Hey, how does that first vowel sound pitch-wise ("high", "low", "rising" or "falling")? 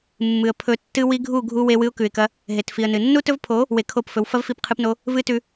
low